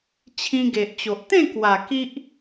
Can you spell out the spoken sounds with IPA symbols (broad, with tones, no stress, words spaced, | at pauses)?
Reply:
t͡ɕʰĩ˧ɡe˨ʔt͡ɕo˨ʔ t̪ẽ˥˧kwa˨˩ ki˦ʔ